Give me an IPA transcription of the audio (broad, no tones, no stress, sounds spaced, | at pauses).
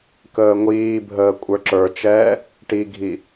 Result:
k əː ŋʷ iː bʱ əː kʷʼ ə˞ ǁ ə˞ t͡ʃ ɛː | ʈ i ɡʱ i